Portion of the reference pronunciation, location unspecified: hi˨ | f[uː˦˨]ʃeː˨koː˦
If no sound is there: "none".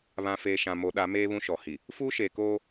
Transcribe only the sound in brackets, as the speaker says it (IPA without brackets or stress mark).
uː˦